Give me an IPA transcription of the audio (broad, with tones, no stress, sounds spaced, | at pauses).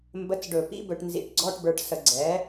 m b ə˧˥˧ t͡s ɖ ɵ˧˩˧ p ḭ˦˥ b ɵ˧ ʈ n z ḭ˧˩˧ ʈ ɡ͡ǀ ɔ˧˥˧ ʈ b ə˞˧ ʈ s ə˧˩˧ ɡ͡ǀ ɛ˩˥